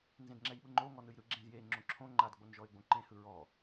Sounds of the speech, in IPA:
n z ẽ d ŋ͡ǁ ɛ j ɓ ɯ ŋ͡ǃ o ŋ ɔ n ɯ j ɾ ɯ ɡ͡ǁ ẽ z j e ŋ͡ǁ õ ǁʰ õ ŋ͡ǃ a d ɡ͡b o n ʒ ɔ ɪ̯ ɡ͡b õ ǃ ẽ h ɯ ɹ ɔ

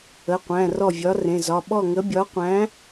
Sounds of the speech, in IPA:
ə˩˧˩ qʷ æ̃˩˧˩ r ɔ˥˩ vʲ ɒ˨˥ r ẽ˩˧˩ z ɒ˩˧˩ ɓ ɔ˥˩ ŋ ə˨˥ bʲ ɒ˨˥ qʷ æ̃˨˥

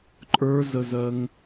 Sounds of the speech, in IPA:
ǃʼ ə˞ z ə z ɜ ŋ

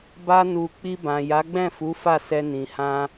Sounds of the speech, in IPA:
b a˧ n u˨ k͡p i˧ b ã˨ j a˨˦ ɡ͡b ɛ̃˦˨ f u˨˦ f a˦˨ s ɛ˧ n ĩ˨ h ã˧

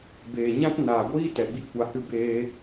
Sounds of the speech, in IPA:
b eː˨ ɲ ã˦ t n aː˨ ɡʷ iː˦ t ɛ˨ ɡ͡b i˦ kʷ a˧ h ɨ˦ b eː˦

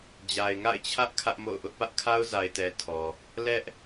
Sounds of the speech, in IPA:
d͡ʑ a˨ ɪ̯ ŋ a̰˦˨ ɪ̯ t͡ɕʰ ä˦ ʔ kʰ ä˦ ʔ m o̰˦˨ ʊ̯ ʔ ʊ˦ ʔ p ä˦ ʔ kʰ a˦ ʊ̯ z a˨ ɪ̯ t ɛ˨ tʰ ɔ˨ | l ɛ˦ ʔ

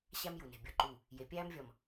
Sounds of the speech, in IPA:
ɕ æ˦ m j u˨ n e̤˨ bʲ ɒ˦ ǃ u˦˨ | j e˨ pʲ æː˦ m vʲ ɒ˨ m

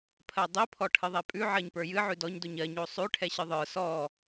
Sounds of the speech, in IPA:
pʰ ɜ dˤ i pʰ ɔ ʈʰ ɨ ðˤ ɛ pʼ ʉ ʕ ɜ ɲ p ə˞ j ɨ ʕ ʉ d ɔ ɲ d o ɲ ɜ ɲ o sˤ ʉ ʈʰ ɛ ɕ ɨ ðˤ ə˞ s ɔ

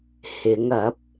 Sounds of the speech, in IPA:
h ɪ˨˧ ŋ ɐ˨˥ p̚

